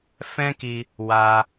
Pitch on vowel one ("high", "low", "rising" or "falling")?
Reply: high